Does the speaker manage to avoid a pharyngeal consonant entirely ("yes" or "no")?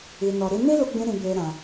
yes